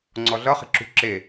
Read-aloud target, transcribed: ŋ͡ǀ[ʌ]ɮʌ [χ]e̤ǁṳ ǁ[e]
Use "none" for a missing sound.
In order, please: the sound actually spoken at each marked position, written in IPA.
ɔ, χ, e

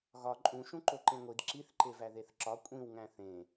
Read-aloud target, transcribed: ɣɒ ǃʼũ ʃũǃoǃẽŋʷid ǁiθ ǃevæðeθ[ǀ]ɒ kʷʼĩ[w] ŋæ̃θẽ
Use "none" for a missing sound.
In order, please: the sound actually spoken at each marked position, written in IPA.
ǁ, w

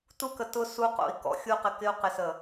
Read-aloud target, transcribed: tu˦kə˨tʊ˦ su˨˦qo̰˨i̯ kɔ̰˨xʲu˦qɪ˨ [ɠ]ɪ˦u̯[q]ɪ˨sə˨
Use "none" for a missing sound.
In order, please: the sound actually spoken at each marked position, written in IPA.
k, q

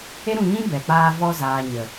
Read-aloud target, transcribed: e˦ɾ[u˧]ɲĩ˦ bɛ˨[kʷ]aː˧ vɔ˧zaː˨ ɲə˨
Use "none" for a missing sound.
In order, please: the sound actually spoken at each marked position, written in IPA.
ũ˧, k͡p

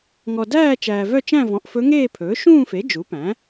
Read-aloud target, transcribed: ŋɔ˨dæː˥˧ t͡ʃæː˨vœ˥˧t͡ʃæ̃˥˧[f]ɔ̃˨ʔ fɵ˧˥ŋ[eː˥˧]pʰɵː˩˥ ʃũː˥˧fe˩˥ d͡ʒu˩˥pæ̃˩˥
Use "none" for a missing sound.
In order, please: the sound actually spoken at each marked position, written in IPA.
v, eː˥˧

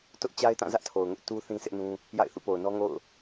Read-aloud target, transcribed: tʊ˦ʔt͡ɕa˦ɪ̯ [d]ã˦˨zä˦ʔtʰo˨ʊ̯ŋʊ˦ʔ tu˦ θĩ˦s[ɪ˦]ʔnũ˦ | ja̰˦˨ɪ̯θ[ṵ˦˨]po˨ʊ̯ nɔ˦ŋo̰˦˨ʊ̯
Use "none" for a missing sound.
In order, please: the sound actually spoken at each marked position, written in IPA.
t, ɪ˦, ṵ˦˨

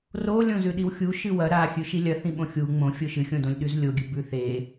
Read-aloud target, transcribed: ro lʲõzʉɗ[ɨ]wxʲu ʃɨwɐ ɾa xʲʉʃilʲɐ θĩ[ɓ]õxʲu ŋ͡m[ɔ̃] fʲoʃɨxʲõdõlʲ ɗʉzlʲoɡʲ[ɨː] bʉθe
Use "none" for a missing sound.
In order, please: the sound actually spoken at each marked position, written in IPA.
i, ɓ, õ, ɨ

